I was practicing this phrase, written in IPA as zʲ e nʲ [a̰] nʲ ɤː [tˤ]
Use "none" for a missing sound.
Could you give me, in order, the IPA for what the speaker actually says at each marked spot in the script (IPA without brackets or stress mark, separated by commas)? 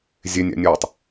a̰, tˤ